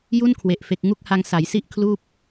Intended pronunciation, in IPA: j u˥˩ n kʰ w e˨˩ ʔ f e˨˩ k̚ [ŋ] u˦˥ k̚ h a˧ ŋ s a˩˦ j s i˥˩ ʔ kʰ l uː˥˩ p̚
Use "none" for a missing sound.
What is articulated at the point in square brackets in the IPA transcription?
ŋ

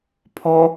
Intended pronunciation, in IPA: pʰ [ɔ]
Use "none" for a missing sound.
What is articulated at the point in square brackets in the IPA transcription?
ɔ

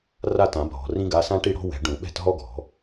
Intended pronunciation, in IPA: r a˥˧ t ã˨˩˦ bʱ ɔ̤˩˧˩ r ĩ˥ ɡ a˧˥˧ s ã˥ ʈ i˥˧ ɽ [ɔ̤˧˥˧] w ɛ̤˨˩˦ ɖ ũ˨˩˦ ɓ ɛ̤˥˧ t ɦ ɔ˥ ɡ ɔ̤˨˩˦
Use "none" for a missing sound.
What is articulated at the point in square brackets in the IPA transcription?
ɔ̤˥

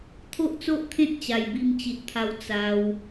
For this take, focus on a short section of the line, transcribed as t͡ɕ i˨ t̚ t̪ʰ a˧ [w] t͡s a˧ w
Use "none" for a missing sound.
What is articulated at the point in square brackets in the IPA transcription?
w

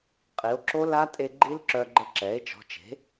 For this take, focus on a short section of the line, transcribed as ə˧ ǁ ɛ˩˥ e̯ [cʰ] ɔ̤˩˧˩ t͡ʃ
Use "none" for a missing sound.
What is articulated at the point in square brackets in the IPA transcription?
t͡ʃ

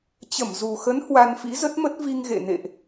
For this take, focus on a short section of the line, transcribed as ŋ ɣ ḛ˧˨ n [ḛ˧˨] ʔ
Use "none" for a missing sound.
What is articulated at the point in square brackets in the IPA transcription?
ḛ˧˨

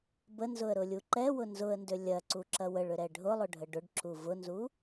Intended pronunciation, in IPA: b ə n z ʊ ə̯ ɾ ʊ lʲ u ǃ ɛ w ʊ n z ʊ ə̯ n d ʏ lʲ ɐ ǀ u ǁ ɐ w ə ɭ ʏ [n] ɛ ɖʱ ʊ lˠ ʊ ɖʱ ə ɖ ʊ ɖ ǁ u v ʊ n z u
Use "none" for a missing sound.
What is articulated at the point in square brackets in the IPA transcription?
ɾ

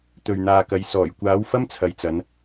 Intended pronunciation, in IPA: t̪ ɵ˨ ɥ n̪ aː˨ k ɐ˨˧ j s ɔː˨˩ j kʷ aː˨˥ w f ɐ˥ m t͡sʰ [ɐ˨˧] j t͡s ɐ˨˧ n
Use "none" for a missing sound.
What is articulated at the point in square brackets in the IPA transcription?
ɐ˨˧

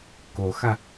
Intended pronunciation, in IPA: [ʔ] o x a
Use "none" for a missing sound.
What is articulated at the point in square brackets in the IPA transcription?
k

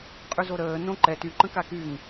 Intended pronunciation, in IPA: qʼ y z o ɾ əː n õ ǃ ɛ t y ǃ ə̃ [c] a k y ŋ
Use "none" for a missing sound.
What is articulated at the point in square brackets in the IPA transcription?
k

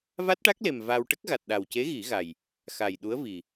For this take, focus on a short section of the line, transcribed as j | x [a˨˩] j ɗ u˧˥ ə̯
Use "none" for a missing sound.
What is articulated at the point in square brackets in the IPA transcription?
a˨˩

